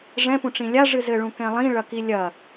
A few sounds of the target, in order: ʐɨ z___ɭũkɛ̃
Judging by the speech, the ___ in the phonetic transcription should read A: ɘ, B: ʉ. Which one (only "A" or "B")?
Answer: A